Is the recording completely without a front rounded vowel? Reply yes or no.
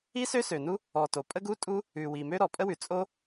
no